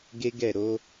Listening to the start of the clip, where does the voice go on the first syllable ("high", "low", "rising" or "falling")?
high